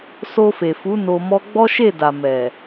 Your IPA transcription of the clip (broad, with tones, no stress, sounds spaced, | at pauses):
s o˧ f e˨ f u˨˦ n o˧ m ɔ˦ ɡ͡b ɔ˦ ʃ e˦˨ d a˨ m ɛ˨